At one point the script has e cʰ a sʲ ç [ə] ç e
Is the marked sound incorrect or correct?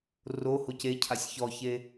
incorrect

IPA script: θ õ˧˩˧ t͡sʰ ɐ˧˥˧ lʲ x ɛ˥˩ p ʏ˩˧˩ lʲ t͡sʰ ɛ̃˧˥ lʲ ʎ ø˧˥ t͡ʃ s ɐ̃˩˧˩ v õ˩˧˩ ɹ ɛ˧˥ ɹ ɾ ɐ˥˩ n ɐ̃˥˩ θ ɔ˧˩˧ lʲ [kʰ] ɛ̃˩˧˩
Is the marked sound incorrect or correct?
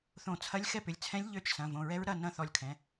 correct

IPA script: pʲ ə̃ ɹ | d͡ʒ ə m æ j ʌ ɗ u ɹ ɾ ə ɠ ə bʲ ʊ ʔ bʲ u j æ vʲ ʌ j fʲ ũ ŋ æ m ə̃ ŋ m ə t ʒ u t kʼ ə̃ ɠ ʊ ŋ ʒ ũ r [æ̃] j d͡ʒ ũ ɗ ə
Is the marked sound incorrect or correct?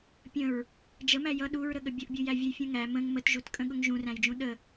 correct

